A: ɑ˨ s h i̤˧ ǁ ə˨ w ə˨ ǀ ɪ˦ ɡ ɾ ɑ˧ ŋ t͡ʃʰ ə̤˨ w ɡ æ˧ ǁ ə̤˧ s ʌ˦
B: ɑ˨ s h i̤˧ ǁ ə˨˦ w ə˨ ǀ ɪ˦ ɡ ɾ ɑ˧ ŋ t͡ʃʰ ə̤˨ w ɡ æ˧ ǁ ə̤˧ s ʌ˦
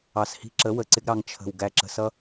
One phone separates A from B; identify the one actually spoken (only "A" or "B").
B